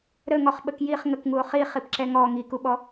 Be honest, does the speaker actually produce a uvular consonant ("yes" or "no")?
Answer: yes